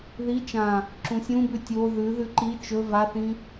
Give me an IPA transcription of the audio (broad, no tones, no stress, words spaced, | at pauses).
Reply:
ði t͡ʃã | ǁũsʲũbʉ tʲo ðʉ ðʉǃi t͡ʃɵ vaθĩ